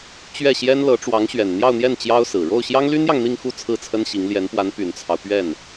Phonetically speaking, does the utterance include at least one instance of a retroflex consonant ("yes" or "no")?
yes